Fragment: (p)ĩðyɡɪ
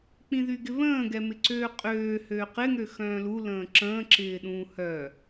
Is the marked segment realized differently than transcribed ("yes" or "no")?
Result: yes